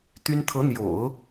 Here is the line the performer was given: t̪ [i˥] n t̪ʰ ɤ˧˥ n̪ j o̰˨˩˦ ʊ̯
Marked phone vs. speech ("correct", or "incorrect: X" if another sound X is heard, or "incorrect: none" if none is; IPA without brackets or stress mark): incorrect: y˥